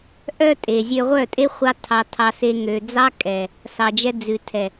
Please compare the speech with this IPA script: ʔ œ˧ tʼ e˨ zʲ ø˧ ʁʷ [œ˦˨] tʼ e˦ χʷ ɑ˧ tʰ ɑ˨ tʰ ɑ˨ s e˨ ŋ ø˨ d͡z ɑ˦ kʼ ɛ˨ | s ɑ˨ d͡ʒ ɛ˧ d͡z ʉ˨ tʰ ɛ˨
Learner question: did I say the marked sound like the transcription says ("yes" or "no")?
yes